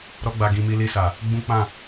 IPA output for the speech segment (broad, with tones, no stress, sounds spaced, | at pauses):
ɾ ɔ˦ ɡ͡b a˧ ɡ ĩ˧ m i˧ l i˧ s a˨ | ɡ͡b ũ˦ k͡p ã˦˨